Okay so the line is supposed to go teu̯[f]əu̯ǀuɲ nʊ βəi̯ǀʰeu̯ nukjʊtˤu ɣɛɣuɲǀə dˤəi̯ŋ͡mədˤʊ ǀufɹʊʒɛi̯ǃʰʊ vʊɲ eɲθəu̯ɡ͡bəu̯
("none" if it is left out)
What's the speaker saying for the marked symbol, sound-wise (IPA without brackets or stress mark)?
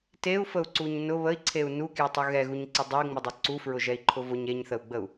f